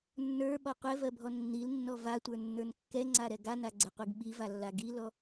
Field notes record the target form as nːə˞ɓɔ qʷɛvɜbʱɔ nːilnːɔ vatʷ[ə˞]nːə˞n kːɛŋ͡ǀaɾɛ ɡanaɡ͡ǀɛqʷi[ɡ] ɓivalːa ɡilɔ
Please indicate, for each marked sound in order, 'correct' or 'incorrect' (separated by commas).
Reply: correct, correct